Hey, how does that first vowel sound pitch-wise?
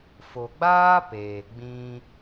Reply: low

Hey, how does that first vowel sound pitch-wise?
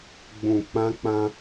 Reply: low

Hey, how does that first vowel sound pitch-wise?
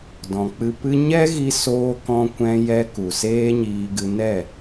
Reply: low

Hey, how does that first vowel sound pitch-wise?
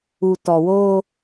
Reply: low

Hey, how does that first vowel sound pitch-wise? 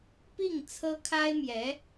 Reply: falling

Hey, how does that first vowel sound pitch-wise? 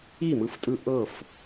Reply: falling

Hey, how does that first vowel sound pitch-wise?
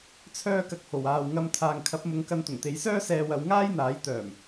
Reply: high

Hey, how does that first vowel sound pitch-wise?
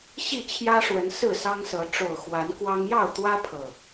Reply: falling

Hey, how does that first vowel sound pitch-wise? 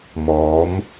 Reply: rising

